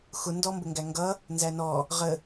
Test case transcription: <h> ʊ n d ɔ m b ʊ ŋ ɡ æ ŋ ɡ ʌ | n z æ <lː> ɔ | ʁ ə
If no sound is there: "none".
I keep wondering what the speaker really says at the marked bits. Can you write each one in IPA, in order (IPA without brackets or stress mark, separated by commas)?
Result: x, n